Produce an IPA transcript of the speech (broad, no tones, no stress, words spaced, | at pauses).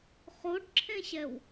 χoɖǁʰẽɕɛw